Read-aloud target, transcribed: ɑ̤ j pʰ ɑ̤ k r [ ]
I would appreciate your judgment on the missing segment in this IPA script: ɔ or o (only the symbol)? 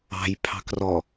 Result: ɔ